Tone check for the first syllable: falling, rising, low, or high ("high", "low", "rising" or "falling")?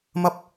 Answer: low